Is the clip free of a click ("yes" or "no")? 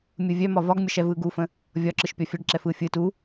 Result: no